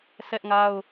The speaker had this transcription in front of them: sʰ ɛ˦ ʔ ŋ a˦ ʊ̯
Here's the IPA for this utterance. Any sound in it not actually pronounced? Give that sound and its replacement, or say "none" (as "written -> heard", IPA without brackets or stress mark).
none